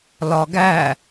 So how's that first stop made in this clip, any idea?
plain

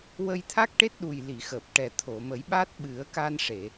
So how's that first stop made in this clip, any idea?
aspirated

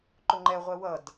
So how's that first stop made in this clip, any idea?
click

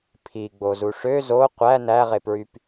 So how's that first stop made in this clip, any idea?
aspirated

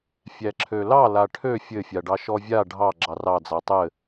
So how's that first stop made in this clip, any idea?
click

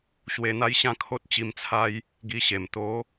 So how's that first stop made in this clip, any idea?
aspirated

